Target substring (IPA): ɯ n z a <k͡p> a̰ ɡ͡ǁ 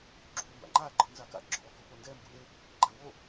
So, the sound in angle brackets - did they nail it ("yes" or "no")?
no